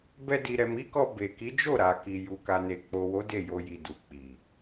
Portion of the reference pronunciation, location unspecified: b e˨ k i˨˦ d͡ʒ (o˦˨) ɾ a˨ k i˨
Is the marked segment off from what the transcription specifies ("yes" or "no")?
no